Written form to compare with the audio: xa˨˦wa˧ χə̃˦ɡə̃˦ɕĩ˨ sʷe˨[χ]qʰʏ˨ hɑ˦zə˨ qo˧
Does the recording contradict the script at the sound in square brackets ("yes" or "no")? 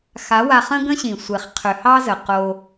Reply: no